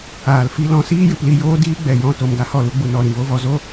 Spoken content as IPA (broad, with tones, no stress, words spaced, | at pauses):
aː˨lfi˧ lɔ̃˨˦siː˦jɨ˨pli˧ joː˦ diː˦ɡ͡bɛ˨jɔ̃˦˨ to˨m ɡa˧hɔ˦˨lu˧ɡ͡bu˨ nɔ˨ ɾĩ˨vo˦vɔ˧ zo˦